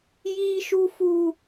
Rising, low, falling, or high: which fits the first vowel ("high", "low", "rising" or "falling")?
high